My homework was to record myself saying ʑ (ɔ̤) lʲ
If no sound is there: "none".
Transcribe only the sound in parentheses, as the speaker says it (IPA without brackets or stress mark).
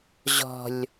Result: ɔ̤